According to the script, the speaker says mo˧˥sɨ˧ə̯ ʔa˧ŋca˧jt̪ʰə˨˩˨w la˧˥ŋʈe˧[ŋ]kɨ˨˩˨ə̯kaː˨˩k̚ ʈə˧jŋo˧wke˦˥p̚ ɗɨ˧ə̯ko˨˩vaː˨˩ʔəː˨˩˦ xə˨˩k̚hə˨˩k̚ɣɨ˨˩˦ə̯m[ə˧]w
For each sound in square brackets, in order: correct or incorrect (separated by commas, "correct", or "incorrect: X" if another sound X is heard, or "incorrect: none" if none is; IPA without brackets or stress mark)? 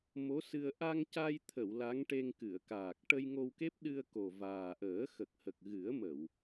correct, incorrect: ə˨˩˨